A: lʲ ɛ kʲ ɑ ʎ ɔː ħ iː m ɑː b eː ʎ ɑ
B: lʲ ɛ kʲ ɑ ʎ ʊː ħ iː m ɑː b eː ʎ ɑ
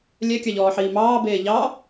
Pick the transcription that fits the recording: A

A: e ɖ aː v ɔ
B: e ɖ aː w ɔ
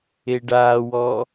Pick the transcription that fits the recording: B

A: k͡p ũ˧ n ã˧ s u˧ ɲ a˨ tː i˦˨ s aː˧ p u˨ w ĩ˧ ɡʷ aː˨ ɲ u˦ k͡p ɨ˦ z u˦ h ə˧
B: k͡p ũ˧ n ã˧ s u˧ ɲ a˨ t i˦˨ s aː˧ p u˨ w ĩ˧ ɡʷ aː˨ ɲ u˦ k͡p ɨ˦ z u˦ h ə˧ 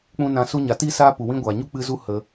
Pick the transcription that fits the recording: B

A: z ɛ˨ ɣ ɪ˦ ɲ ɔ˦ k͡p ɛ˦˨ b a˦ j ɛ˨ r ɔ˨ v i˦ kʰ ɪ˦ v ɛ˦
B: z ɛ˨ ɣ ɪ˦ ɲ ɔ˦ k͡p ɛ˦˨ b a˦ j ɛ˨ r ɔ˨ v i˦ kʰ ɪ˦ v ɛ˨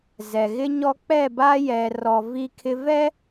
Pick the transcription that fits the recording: A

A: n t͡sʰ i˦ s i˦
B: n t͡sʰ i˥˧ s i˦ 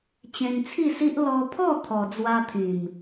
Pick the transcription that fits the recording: B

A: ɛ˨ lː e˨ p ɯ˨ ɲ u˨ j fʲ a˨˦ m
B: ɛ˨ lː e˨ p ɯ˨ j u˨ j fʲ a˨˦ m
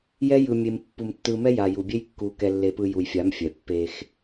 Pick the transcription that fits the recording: B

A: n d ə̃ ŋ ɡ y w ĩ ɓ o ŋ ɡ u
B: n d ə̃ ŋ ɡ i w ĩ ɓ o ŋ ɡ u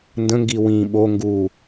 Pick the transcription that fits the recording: B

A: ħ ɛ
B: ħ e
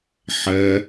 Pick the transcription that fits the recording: A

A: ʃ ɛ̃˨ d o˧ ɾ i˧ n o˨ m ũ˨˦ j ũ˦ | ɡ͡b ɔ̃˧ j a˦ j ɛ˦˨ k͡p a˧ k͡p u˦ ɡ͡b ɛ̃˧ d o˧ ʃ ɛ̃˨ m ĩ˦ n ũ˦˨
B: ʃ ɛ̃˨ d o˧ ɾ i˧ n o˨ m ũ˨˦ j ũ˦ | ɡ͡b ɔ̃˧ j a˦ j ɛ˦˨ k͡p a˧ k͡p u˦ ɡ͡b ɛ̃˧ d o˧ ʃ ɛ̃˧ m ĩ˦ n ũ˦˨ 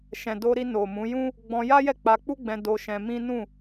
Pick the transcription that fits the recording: B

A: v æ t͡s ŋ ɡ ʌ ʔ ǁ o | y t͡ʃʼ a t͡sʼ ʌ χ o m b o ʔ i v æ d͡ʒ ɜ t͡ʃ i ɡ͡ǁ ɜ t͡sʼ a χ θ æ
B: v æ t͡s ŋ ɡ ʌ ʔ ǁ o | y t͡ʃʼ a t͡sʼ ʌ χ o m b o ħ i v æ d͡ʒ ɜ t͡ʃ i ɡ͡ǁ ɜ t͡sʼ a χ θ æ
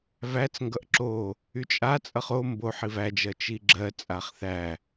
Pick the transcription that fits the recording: B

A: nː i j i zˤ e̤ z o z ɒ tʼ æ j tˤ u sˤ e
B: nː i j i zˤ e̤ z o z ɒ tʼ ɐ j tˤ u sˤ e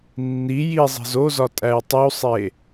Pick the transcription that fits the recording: A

